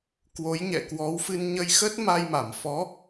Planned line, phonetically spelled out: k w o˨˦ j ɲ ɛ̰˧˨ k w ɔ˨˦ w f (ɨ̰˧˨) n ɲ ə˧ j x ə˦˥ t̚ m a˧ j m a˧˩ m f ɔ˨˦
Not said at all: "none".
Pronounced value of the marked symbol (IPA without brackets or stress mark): ɨ˧